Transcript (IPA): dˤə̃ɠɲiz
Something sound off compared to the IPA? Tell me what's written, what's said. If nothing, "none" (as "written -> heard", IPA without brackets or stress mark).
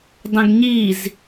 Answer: ɠ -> ɡ